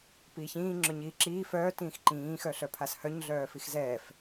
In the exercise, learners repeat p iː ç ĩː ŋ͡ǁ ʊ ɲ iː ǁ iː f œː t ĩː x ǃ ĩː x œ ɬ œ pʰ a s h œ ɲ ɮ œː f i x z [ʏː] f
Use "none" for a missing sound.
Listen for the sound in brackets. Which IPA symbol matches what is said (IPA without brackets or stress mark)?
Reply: ɛː